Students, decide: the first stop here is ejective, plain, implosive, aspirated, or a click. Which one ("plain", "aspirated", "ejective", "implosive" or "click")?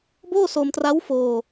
plain